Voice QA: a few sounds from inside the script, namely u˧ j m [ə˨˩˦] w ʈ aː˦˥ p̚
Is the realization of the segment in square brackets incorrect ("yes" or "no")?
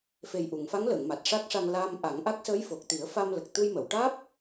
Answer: yes